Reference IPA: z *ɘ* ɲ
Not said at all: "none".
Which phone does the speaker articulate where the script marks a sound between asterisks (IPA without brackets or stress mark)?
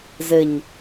ɘ